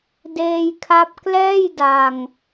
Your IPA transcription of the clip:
d eː˧ j kʰ a˦˥ p̚ k l ɛː˥˩ j d a˧ ŋ

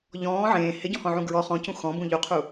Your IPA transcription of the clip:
ʎ ɔ̃ː ʕ ẽː h ɪ ɟ ɔ̃ h ɔ̃ ʕ ũ ɡ ɹ ɔ χ ɔ̃ c ũ x ɔ̃ b ũ ʎ u qʰ u

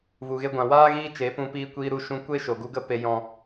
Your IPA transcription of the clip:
v u˨ ɣ e˧ ɡʷ ã˨ w aː˦ ɣ iː˦ t͡ʃ e˨˦ p ũ˧ p iː˧ kʷ iː˧ ɾ u˧ ʃ ũ˧ kʷ e˦ ʃ o˨ ɡ u˧ ɡ ə˧ p e˨ j ɔ̃˨

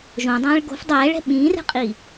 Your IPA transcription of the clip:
ʒ õ dˤ ɛ̃ː ɭ ɡ o̤ f dˤ ɛː ɭ ɛ̤ ɓ ĩː r ɛ̤ qʼ i

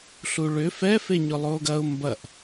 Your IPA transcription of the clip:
ɬ u ɭ ʏ f ɛ f e ɲ ʊ lˠ oː ɡ ɐ ʊ̯ m b ɐ ʔ

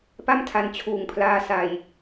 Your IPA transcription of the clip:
p a˥˩ m tʰ a˧ n t͡ɕʰ uː˨˩ ŋ pʰ l aː˧ s a˧ j

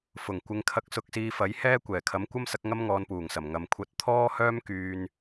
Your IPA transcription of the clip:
f ʊ˨˩ ŋ kʷ ɪ˨˧ ŋ kʰ ɐ˧ k̚ s ʊ˧ k̚ s iː˧ f ɐ˨˥ j h ɛː˥ kʷ ɛː˨˩ kʰ ɐ˨˥ m kʷ ɐ˥ m s ɐ˨˥ k̚ ŋ ɐ˥ m ŋ ɔː˨˧ n p uː˨˩ ŋ s ɐ˨˩ m ŋ ɐ˨ m kʷʰ ɐ˧ t̚ t̪ʰ ɔː˥ h œː˥ m k yː˧ n

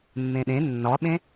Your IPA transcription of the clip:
mː ẽ ɗ ẽ nː ɒ ɓ ẽ

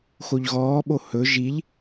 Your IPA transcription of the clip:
x o ʎ ɣ ɔː ɓ o h ɵ ʒ i ʎ

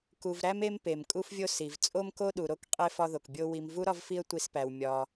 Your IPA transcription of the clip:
k u˨ v ɾ æ˥ m e˥ m p e˩ m kʼ u˦ f vʲ o˦ s i˩ v t͡sʼ o˦ m k o˦ ɗ u˩ ɾ o˦ k qʼ e˥ f ɒ˦ ð o˩ k bʲ o˦ w i˨ m v u˥ ɾ ɒ˦ v f i˦ ə̯ tʷ i˨ s p æ˩ w mʲ ɒ˩

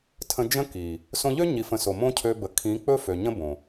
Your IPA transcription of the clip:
tʰ ə̃˧ d͡ʒ ə̃˦ k i˨ | s õ˧ ʎ ø˦ ɲ i˧ f ə̃˧ s o˨ m õ˦ cʰ ø˧ b ə˨ kʰ ĩ˨˦ k͡p ɵ˦ f ø˨ ɲ ə̃˦ b õ˨

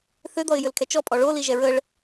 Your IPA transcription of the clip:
θ ʏ d̪ ɔ ɪ̯ j ʏ l kʰ ɛ t͡ʃ ɔ pʼ ɔ ɭ o l i ʒ ɛ ɹ ə ɭ

